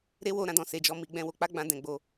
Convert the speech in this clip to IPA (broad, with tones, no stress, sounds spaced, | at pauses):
ɾ e˦ w o˦˨ ɾ ã˧ d ɔ̃˨ s e˨ d͡ʒ ɔ˨˦ m i˧ ɡ͡b ɛ̃˧ w o˧ k͡p a˦ ɡ͡b ã˧ d ɛ̃˧ ɡ͡b o˧